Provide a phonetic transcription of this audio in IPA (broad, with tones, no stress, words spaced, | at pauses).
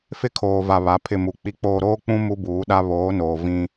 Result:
fɪ˦kʰoː˨va˨ βa˨˦pʰɪ˦˨mu˨ k͡pi˨k͡poː˨ ɾoː˦k͡pũ˦ mu˦buː˨˦ɗa˦ βoː˨˦noː˨ vĩ˦